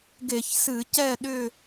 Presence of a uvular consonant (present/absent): absent